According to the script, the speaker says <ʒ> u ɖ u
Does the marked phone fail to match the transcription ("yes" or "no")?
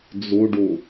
yes